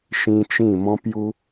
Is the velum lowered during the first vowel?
yes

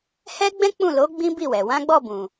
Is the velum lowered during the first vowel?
no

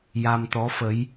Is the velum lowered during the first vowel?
no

